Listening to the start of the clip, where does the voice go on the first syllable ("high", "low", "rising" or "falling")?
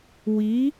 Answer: rising